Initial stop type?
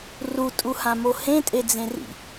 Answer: ejective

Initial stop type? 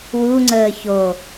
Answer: click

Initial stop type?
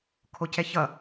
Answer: aspirated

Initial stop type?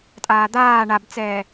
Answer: ejective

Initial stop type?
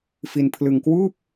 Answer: aspirated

